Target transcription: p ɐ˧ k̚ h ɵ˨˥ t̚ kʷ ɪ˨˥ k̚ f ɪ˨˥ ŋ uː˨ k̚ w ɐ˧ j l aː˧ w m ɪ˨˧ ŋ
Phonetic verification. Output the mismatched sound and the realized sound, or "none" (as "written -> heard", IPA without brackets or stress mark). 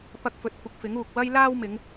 h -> f